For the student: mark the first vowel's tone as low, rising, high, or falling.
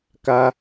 high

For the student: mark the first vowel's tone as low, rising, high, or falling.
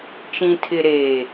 low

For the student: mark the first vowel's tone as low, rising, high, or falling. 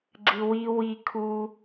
high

